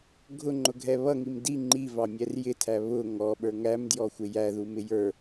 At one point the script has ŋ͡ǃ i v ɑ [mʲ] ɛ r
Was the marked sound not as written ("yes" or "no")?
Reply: no